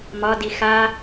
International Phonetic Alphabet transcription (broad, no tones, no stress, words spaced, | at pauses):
mɒdi xa